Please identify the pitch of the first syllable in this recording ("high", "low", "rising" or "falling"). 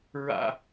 high